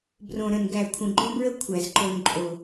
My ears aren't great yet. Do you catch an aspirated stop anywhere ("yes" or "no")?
yes